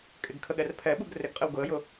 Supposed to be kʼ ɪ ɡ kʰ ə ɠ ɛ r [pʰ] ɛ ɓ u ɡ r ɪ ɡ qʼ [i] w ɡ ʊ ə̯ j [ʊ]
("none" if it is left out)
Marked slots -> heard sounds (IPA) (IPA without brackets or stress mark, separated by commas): pʰ, ɪ, ʊ